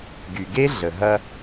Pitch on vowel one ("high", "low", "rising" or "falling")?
low